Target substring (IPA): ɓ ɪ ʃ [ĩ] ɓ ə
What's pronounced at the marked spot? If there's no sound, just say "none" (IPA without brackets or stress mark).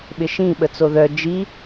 ĩ